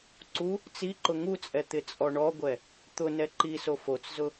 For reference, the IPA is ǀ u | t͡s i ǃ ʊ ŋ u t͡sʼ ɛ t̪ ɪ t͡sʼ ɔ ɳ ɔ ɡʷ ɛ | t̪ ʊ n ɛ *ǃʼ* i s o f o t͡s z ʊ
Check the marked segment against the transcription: incorrect: ǃ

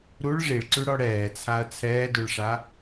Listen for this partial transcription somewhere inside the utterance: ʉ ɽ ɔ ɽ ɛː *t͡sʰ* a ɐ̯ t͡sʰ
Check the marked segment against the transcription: correct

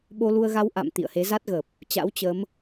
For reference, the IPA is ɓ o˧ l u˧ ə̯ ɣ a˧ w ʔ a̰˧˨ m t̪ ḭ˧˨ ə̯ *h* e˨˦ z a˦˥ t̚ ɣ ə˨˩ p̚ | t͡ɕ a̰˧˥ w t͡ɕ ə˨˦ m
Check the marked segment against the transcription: correct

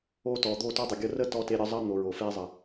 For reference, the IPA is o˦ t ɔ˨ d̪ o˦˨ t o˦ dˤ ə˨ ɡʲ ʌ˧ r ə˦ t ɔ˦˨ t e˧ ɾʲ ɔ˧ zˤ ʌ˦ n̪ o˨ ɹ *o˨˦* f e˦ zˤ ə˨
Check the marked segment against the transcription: incorrect: o˨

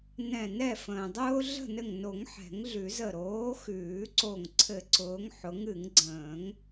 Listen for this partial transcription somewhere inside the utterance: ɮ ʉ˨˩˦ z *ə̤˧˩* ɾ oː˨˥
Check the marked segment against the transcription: incorrect: ə˧˩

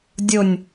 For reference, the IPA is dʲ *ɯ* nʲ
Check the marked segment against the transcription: incorrect: ʊ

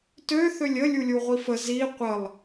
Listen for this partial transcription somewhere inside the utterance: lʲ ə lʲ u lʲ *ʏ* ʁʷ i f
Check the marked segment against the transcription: incorrect: u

